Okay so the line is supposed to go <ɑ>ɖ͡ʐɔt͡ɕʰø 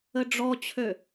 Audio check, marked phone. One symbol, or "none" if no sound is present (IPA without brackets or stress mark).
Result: ə